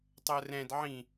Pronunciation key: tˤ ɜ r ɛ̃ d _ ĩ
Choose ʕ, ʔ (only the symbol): ʕ